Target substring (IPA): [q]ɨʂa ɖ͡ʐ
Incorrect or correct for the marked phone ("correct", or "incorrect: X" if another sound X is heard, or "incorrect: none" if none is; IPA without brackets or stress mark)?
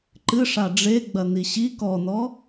incorrect: ǃ